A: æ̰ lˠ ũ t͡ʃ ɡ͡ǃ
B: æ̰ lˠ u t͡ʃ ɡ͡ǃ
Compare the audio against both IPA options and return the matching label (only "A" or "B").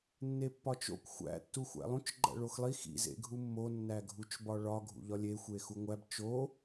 A